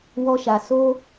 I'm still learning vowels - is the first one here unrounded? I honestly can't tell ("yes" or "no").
no